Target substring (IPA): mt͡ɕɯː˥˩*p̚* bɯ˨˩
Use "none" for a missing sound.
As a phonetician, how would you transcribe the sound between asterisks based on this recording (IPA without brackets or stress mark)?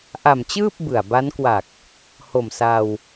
p̚